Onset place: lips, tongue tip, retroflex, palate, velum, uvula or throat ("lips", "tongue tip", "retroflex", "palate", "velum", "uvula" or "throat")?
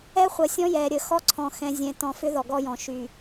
uvula